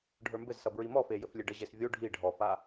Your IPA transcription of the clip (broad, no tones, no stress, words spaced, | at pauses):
ɖʱə˞mbɘzsʌ bɹimɔfe jɘflʲeɖəʑes vʲo ɖʱi ɖʱɔfa